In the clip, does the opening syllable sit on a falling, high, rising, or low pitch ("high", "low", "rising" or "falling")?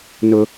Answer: high